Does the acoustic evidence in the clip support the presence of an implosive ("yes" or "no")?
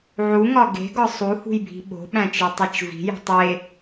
yes